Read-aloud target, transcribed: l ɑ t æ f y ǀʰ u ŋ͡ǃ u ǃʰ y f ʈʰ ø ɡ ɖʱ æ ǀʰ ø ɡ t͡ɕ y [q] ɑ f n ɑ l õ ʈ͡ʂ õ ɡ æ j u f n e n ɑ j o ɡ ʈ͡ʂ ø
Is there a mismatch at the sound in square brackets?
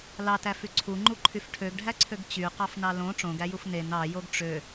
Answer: no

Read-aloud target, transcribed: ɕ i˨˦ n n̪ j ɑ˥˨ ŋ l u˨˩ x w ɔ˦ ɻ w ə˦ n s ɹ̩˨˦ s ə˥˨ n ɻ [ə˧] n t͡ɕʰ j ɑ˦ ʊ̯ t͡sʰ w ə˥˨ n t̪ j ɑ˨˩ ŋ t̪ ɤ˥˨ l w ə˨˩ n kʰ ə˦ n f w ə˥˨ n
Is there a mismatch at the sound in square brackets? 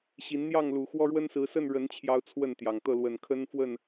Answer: yes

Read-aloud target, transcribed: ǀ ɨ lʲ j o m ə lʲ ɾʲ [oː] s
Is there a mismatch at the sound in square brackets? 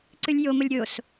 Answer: yes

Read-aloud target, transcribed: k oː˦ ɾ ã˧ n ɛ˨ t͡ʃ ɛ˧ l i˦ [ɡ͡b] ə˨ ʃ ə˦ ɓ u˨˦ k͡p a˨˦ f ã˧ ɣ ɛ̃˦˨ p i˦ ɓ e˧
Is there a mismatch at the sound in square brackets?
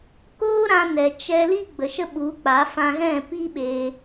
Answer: no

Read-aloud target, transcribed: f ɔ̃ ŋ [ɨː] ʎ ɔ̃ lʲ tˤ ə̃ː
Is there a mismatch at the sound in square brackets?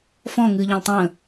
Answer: no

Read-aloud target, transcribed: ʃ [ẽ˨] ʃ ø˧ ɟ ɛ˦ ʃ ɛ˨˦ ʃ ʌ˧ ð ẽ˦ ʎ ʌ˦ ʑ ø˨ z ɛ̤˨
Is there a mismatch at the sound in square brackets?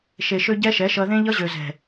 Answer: yes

